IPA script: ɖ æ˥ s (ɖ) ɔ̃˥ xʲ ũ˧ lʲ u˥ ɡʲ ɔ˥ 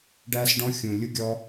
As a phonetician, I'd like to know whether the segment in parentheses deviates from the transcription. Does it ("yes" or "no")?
no